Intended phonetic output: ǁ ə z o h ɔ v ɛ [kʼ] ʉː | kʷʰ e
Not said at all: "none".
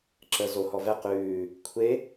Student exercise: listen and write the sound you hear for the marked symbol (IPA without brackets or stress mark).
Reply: q